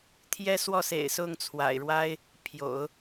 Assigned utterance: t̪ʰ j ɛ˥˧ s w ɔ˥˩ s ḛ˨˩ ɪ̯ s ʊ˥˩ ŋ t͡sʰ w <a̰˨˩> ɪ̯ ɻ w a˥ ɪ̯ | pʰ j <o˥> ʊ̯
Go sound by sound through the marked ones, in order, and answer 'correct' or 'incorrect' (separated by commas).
correct, incorrect